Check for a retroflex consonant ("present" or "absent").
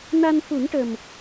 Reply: present